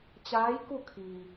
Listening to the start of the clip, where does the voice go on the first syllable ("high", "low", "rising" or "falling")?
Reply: rising